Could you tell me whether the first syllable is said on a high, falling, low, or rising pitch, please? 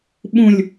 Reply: low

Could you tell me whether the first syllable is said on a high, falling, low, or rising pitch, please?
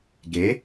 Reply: rising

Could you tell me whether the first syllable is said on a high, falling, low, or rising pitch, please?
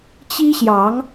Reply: high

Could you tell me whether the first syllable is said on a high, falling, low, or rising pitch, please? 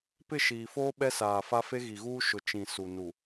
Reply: falling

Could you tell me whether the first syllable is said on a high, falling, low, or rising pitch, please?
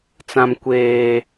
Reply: high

